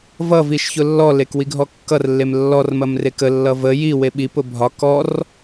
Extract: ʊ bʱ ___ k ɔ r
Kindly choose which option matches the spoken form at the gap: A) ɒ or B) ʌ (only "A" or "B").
A